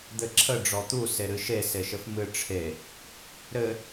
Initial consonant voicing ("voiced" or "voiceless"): voiced